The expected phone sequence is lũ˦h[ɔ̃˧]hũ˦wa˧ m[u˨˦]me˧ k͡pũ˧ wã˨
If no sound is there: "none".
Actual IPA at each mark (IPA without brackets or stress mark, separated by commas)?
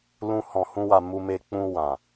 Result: ɔ̃˧, u˧